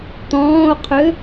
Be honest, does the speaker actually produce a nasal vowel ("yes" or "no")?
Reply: yes